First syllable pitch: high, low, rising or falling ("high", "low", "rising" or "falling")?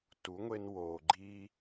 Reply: rising